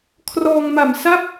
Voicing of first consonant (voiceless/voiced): voiceless